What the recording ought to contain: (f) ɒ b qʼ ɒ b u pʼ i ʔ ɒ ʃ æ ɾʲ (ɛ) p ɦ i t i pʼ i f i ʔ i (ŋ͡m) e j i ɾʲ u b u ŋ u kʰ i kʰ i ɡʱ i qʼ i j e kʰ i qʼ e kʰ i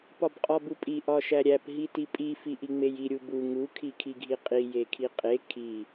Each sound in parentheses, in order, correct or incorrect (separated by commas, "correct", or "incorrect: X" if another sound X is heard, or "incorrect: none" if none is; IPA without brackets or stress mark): incorrect: p, incorrect: æ, correct